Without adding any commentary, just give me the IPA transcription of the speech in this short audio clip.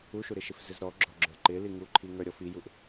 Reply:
u ʃ u ɾ ɪ ʃ ɪ f z ɪ z ɾ ɔ ɡ͡ǁ ɔ ɡ͡ǁ ə˞ ǃ ɪ l i ŋ u ǃʰ i ŋ ə˞ ɾʲ ɔ f i j u ʔ

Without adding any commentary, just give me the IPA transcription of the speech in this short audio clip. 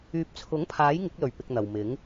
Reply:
yː˨ p̚ t͡sʰ ʊ˨˥ ŋ pʰ aː˨˥ j ŋ ɪ˨˥ k̚ l ɵ˨˩ ɥ p ɪ˨ k̚ n̪ ɐ˨ w m ɪ˨˥ ŋ

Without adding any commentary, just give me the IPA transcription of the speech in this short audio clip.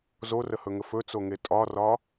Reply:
z o r ə h ɵ ŋ ə f ɵ t͡s o ŋ e tʼ ɒ r ɒ

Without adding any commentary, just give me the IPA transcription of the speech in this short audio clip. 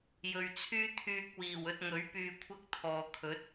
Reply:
j ɵ˨ ɥ t͡sʰ yː˥ t̪ʰ yː˧ k̚ w iː˨˩ w ɵ˧ t̚ ŋ ɵ˨˥ ɥ p yː˧ kʷʰ ɐ˥ k̚ t̪ʰ ɔː˨ kʰ ɵ˨˥ t̚

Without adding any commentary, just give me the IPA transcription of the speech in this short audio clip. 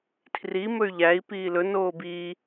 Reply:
tʰ r i m ɵ y̯ ʎ æ i̯ p iː l ɵ n oː b iː

